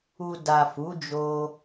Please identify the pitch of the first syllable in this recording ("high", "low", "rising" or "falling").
low